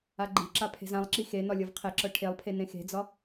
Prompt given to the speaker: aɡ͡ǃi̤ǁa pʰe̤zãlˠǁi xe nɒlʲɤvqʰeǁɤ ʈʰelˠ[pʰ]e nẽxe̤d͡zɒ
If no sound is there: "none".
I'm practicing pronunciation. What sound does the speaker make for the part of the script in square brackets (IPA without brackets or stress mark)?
pʰ